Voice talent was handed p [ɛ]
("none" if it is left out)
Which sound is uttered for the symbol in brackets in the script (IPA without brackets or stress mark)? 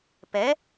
ɛ